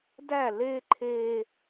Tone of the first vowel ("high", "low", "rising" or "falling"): falling